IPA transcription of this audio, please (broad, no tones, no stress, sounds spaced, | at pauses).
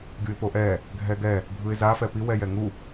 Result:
ɡʲ u ɪ̯ p o ʔ ɛ | ɡʱ ɛ ɡ ɛ | bʱ ɯ ɪ̯ z a f ɛ p i w ɛ j ɛ ŋ u